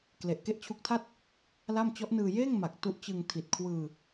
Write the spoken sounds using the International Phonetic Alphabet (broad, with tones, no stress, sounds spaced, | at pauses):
k l e˨˩ ʔ k e˥˩ ʔ t͡ɕʰ u˦˥ k̚ tʰ a˥˩ t̚ | l a˥˩ m t͡ɕ ɔ˦˥ ʔ n ɯː˧ j eː˥˩ ŋ m a˨˩ k̚ t u˦˥ ʔ t͡ɕ ɯ˧ ŋ tʰ i˨˩ t̚ kʰ w ɯː˧